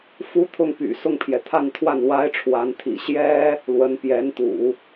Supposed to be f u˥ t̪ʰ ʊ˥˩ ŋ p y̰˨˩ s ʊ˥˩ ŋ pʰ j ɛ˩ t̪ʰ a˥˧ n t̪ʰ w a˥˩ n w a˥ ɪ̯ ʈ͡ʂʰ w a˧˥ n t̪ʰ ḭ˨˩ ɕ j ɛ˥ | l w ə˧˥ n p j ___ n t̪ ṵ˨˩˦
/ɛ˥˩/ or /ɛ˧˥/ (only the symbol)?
ɛ˧˥